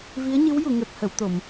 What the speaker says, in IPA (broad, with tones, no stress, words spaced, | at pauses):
vi˧˥ə̯ɲɨ˧˥w ju˨˩˨ŋɛ˨˩p̚hə˨˩˨w t̪o˨˩˨m